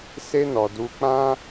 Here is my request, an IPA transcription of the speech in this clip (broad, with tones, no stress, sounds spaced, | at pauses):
s e˦ n ɔ˧ d u˧ k͡p ã˦